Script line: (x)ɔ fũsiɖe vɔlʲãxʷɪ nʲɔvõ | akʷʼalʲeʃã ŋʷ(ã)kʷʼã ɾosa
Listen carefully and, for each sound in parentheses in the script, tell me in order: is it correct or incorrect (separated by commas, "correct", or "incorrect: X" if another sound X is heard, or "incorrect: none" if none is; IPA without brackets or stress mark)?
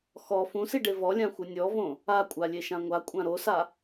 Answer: correct, incorrect: a